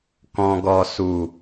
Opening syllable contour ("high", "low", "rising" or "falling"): low